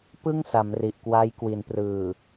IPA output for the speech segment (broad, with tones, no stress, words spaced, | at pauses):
pɯ˥˩ŋsa˩˦m ri˨˩ʔkwa˦˥j kwi˩˦nprɯː˨˩